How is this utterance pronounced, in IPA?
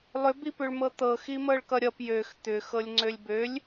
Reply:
lˠ ʏ b i p ʏ ɭ m ɤ t̪ ɤ x i m ɤ ɭ k ʌ ɾʲ ʌ p j ø x t̪ ʏ x ɤ lʲ ŋ͡ǀ ø lʲ b ø lʲ

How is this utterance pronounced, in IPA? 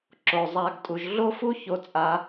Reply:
ǁ o˨ zˤ a˧ ɡ tʼ u˨ ʒ ɮ o˦ f u˦ ç o˧ t͡sʼ a˧

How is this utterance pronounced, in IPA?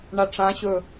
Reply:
ɳ a ʈ͡ʂ ã ɕ ɵ

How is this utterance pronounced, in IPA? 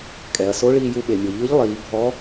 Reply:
kʼ ɛ˩ ɐ̯ s o˧˥ ɭ iː˧ j u˧ ɓ e˩ mʲ o˩ ʎ ɯ˧˥ ʎ lˠ iː˩˧ bʱ ɔ˧˥

